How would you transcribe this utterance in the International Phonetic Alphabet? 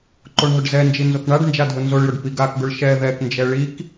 ǃ o ɳ ɦ ʊ ɖ z ɛ n d͡ʒ i n z o k ɳ a ɖ n d͡ʒ a dʱ ʊ n z o ɭ j ʊ ɖ p i ɡ a k ɡ ʊ ɭ ʃ ɛ ð ɛ k n d͡ʒ ɛ ɭ i k

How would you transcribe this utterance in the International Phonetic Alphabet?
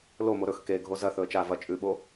l o m o ɾ ɵ x k e ɡʱ o z ɐ θ ɵ ə̯ t͡ʃ a v ɐ t͡ʃʼ ʉ ɓ o

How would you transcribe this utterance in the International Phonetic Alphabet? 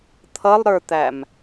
t̪ʰ ʌ lˠ ɾ ə˞ t̪ æ m

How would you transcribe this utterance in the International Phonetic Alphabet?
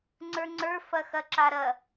ŋ͡ǀ ə˞ ŋ͡ǀ ə˞ f ɐ x ɐ ǁ a ɾ ɐ

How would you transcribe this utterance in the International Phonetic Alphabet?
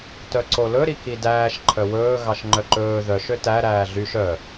t œ ǀ o l ɵ ɾ i k i d æː ʃ ǃʰ œ w ɵː ɣ ɑ ʃ ŋ͡ǃ œ ǃ ɵː ð œ ʃ ø t æ ɾ æː ɮ y ʃ œ

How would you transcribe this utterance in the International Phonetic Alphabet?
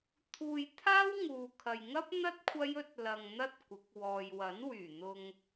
t̪ʰ uː˧ j t̪ʰ aː˥ w ŋ uː˨ kʰ ɐ˨ j ŋ ɐ˥ p̚ n̪ ɐ˥ t̚ kʷʰ ɐ˥ j ɵ˥ t̚ l ɐ˧ ŋ n̪ ɐ˥ t̚ kʷ ɪ˨˥ k̚ w ɔː˨ j w ɐ˨˥ n w yː˨˩ n̪ ʊ˨ ŋ

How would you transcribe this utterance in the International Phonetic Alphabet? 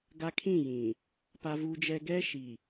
ɡ a˦ kʰ ĩ˦˨ j ĩ˨ | p a˦ v u˦ d͡ʒ ɛ˦ ɡ ɛ˦ ʃ i˨

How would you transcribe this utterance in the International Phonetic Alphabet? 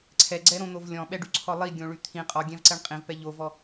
ǀʰ ɛ ɡ͡ǀ ɛ ɾ õ n̪ o v lʲ ɔ̃ ɓ ɛ ɖ y ǀʰ ɔ lˠ i ɡʲ õ ɭ y t̪ʰ ĩ qʼ ɔ ɡʲ ɛ̃ v ǀ ɛ ɳ qʼ ĩ v p ɛ ʎ o v ɔ

